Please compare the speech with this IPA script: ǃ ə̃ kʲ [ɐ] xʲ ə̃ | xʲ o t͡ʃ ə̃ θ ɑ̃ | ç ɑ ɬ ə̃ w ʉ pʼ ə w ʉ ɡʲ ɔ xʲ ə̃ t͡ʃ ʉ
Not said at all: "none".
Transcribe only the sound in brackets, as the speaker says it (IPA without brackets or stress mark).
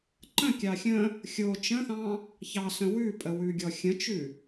ɑ